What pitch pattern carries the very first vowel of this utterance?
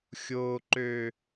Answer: low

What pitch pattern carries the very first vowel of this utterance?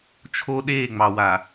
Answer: high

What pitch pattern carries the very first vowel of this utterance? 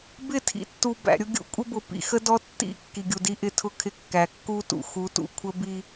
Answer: falling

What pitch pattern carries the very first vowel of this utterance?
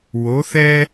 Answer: rising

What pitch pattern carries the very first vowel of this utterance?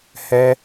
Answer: high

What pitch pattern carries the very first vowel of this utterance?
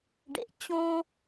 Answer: high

